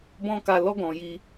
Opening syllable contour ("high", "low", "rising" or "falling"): high